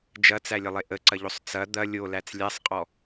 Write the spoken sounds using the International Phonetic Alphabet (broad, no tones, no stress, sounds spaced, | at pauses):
d͡ʒ ɐ t͡s æ lʲ ə lˠ e ʔ ə ǀ ɐ ʎ o sˤ t͡s ɐ d̪ ɐ lʲ o l æ t͡s lʲ æ sˤ qʼ ɔ